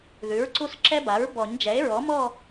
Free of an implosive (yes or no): yes